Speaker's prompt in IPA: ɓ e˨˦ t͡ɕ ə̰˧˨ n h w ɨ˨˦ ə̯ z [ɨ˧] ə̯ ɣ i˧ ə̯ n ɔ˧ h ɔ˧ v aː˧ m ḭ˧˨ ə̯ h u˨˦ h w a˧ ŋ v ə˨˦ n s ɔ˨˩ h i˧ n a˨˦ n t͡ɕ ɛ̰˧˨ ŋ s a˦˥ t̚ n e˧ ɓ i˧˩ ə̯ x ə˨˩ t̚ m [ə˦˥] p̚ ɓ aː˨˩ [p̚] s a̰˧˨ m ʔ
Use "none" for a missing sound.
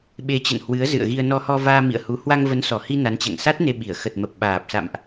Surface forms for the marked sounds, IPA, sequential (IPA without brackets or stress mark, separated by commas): ɨ̰˧˨, ə˨˩, p̚